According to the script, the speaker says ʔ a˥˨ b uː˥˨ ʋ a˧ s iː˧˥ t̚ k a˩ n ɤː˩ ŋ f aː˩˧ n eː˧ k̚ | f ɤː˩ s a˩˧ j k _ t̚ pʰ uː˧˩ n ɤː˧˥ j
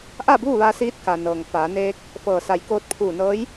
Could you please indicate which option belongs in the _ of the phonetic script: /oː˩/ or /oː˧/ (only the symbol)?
oː˧